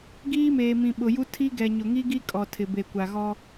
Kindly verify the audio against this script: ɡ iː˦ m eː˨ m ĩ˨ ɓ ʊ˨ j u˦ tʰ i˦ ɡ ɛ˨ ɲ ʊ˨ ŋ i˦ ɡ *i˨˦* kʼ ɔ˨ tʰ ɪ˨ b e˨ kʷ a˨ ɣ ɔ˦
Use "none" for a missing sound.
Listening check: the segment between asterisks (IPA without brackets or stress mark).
i˦